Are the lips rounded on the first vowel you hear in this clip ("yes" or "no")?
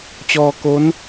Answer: yes